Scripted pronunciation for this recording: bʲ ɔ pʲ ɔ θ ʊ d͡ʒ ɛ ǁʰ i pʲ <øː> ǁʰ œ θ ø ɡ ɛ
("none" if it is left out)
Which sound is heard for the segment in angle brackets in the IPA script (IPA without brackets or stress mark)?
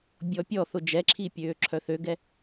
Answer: øː